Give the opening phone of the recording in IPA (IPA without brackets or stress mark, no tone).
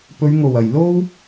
p